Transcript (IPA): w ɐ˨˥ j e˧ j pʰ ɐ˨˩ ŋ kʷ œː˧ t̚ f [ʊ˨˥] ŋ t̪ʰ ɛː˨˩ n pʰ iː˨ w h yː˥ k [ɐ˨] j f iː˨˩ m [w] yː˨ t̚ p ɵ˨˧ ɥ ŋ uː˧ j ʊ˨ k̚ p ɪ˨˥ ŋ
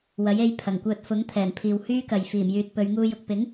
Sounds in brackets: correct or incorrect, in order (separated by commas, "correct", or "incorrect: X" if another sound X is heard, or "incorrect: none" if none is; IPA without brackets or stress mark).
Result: correct, correct, incorrect: j